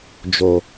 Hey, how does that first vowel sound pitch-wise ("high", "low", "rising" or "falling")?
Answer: low